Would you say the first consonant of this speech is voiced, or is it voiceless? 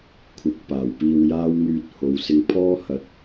voiceless